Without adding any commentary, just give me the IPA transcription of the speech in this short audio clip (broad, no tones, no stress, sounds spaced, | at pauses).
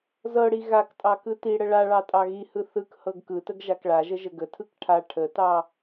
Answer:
z ɤ ɽ i ɣ a k tʼ ɑ k ɯ t i ɽ ə ɭ a ɭ ɑ tʼ ɑ ɣ i h ɯ θ ɯ k h ɤ ɡ k ɯ t ə ɡ ʒ a k ɭ a ʒ ə ʒ ə ɡ ə tʰ ɯ k ʈʰ a ʈʰ ə t ɑ